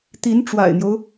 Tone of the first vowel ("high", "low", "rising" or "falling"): rising